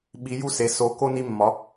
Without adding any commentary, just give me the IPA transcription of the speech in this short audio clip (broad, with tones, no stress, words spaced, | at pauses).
ɓi˨˦ju˦ se˨˦ so˨˦ko˦ ni˦mːɒ˨˦